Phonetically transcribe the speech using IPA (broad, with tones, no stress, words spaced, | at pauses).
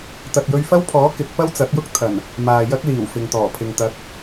t̪ɐ˨t̚jɵ˧ɥfɐ˥wpʰɔː˨˥ kɪ˨˥k̚ pɐ˥wt͡sɐ˨˥t̚jʊ˥k̚ t̪ʰɐ˨˩n | maː˨jɐ˥k̚ liː˨˩wfɪ˨ŋt̪ɔː˨˩pʰɪ˨ŋ t̪ɐ˨˥k̚